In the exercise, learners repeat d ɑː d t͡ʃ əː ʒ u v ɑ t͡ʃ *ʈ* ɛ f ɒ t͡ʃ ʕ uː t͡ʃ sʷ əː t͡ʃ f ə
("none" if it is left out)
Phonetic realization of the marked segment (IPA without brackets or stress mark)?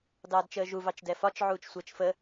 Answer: d